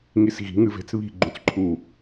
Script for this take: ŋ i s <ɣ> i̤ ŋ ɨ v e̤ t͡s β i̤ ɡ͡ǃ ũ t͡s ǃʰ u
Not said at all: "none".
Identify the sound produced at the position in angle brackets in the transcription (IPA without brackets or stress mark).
ɣ